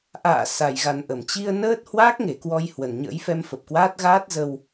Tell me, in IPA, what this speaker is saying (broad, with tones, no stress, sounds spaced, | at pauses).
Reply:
ʔ a̰ː˧˨ s a˨˩ j ɣ a˨˩ n ʔ ə˧˩ m t͡ɕ i˧ ə̯ n əː˦˥ t̚ h w aː˦˥ k̚ ŋ e˧˩ k w ɔ˧ j h w ə˨˩ n ɲ ə̰ː˧˥ j f ɛ˧ m f ə˨˩ p̚ k w aː˦˥ t̚ ɣ aː˦˥ t̚ z ə˧ w